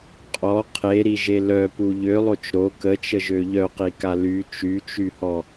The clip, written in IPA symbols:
qʼ ɔ qʰ e ɾ i ʒ e l œ p u ʎ ø lˠ o t͡ʃ ɾ o k ə t͡ʃ ə ʒ ø ʎ œ q i k a l y t͡ʃ y t͡ʃ y h ɔ

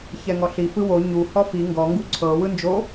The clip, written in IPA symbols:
ç ɛ ŋ ɔ ɬ i f ɯ w o ɲ u h ɔ f i ŋ ɡ ɔ ŋ ɡ u ǀʰ ɤ w ɯ n d͡ʒ o

